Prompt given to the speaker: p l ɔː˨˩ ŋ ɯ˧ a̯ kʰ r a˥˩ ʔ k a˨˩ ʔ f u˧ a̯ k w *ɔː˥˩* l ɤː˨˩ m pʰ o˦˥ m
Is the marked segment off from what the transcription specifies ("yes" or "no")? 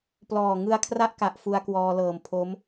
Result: yes